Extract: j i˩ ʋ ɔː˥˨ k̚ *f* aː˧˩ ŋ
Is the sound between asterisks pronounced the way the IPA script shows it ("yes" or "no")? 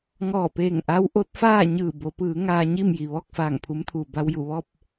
yes